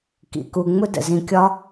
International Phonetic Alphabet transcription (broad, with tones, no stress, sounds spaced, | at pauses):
k ḭ˨ k u˧ ŋ͡m ʊ˦ d ə̰˨ z ĩ˧ kʲ ɒ˦